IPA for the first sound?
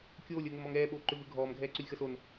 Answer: kʲ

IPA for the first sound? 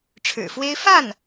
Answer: ʈ͡ʂʰ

